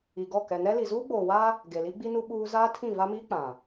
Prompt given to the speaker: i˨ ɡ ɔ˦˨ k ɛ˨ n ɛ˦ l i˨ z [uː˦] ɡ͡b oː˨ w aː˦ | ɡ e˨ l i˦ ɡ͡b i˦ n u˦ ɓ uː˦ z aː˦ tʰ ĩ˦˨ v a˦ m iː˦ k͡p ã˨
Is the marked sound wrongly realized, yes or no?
no